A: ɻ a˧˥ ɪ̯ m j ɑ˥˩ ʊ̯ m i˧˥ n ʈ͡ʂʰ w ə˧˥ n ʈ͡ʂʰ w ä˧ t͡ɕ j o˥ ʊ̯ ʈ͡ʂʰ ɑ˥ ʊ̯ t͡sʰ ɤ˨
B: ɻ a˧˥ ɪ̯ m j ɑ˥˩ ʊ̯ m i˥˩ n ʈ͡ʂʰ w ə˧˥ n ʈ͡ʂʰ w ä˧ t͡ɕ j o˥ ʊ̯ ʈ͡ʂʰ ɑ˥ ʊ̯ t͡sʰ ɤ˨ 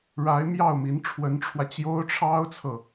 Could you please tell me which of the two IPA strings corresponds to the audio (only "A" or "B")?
A